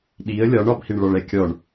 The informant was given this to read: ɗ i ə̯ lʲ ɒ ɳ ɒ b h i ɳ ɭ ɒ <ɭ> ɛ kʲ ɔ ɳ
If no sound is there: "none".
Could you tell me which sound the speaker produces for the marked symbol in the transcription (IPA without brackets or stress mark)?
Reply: ɭ